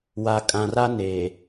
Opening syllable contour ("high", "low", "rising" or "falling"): low